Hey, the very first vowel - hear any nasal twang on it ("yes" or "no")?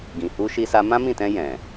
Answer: yes